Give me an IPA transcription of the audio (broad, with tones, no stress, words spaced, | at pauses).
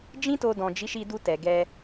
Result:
d͡ʒĩ˦to˧dɔ̃˨ d͡ʒi˨˦ʃi˧du˧tɛ˨ ɡɛ˧